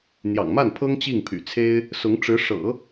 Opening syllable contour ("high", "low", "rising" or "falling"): low